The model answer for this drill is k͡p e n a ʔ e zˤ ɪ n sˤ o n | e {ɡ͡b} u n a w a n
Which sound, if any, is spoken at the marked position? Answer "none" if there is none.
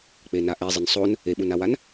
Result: ɓ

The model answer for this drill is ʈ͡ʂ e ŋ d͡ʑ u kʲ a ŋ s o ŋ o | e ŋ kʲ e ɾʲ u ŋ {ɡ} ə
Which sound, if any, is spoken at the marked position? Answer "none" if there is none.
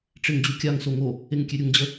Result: d͡ʑ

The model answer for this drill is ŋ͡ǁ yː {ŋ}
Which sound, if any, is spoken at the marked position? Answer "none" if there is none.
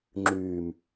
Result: m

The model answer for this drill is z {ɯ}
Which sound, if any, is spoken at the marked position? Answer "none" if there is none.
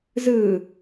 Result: ɯ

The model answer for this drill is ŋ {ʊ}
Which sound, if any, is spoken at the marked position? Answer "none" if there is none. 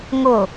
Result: ʊ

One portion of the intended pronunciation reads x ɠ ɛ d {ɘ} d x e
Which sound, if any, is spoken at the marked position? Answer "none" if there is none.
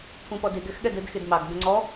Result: ɘ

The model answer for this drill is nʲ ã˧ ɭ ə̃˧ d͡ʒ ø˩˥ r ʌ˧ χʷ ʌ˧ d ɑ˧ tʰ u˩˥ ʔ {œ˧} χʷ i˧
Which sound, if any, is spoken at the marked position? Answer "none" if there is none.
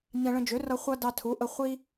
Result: ə˧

